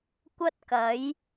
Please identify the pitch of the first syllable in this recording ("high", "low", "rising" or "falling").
high